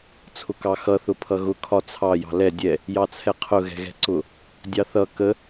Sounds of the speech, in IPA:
t͡sʰ ʊ k ɑ x ʌ θ ʊ pʰ ʌ ɣ ʊ kʰ ɒ t͡sʰ ɑ j ɑ̤ l ɛ dʲ ɛ | j ɑ t͡sʰ ɛ qʰ ʊ ɣ ɛ̤ ɣ ɛ̤ ǀ ʊ | dʲ ɑ θ ʌ k ə

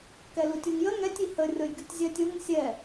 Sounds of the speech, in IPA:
k ɛ l u tʲ u ŋ j ə ŋ ɛ tʲ i h ə rʲ ɔ j ɡʲ u tʲ zʲ æ tʲ ʊ ŋ sʲ ɛ

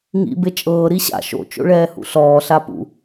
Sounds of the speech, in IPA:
ŋ ḭ b e t͡ʃʼ ɤː ɾ i ɕ a̰ ʃ o̰ t͡ʃ o̰ ɭ ɛː h ṵ ɬ ɔː ɬ a p ṵ

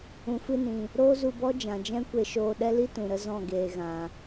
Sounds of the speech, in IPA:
ũ˨ f ɨ˧ n ĩ˨ | ɾ oː˦ z u˧ b ɔ˦ d͡ʒ ã˨ d͡ʒ ɛ̃˦ kʷ e˧ ʃ oː˧ ɗ ɛ˦ l i˦ t ũ˨ ɾ ə˧ z ɔ̃˦˨ ɡ eː˨ ɣ ã˨

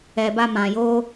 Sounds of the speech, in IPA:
ɛ˨ b a˧ m ã˨ j o˧

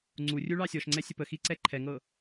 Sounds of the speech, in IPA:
ŋ͡ǀ u rʲ u ɭ ɑ sʲ ɔ ʃ ŋ͡ǀ ɛ sʲ ə p ə x i ǀ ɛ ǃʰ ɛ ŋ ɤ

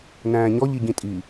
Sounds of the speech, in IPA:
n æ̃ː ɲ ɔ ʎ i ɟ ĩ tʼ i

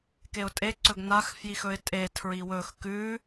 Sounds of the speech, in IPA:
k e ʊ̯ tʼ e ǀ ɵ ɡ n a x f j i x ɵ ɪ̯ tʼ e tʰ ɹ i w ɵ x k ʉ

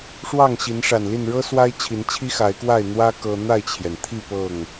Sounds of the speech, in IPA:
ʂ w ɑ˥˨ ŋ ɕ i˨˦ n ʂ a˨˩ n l i˥˨ n ɻ ɤ˦ s w a˦ ɪ̯ t͡ɕʰ i˨˦ n t͡ɕʰ i˦ x a˨˦ ɪ̯ k w a˥˨ ɪ̯ n̪ w ä˦ k ɤ˦ n̪ a˥˨ ɪ̯ t͡ɕʰ j ɛ˩ n t̪ʰ i˥˨ p ɤ˥˨ ŋ

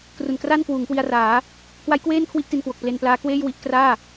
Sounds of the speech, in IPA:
k r u˨˩ n k r a˥˩ n k w uː˩˦ ŋ k w i˧ a̯ r aː˩˦ | k w a˦˥ j k w eː˥˩ n kʰ w i˥˩ ʔ t i˧ n k w o˨˩ k̚ p l e˧ n p l aː˦˥ k w eː˥˩ j w i˦˥ ʔ k r aː˥˩

